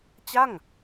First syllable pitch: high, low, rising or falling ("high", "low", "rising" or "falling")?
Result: falling